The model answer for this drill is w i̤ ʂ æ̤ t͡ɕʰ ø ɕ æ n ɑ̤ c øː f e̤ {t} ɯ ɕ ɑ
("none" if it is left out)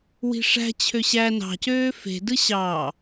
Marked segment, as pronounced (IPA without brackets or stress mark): d